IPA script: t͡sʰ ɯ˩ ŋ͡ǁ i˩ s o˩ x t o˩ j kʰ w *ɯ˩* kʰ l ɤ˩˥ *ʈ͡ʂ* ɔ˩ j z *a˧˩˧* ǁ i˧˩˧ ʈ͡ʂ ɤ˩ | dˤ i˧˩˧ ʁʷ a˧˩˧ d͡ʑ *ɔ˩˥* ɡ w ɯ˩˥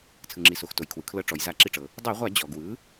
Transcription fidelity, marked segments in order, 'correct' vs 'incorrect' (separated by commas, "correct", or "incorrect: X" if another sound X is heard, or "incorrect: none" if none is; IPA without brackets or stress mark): correct, correct, correct, incorrect: ɔ˩